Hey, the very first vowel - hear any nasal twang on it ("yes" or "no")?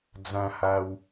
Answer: yes